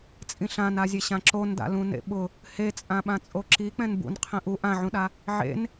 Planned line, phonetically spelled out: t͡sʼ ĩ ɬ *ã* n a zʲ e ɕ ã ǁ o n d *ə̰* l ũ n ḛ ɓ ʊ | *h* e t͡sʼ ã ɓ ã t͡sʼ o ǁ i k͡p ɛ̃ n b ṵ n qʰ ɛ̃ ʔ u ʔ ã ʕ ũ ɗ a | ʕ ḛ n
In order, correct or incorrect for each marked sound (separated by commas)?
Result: correct, incorrect, correct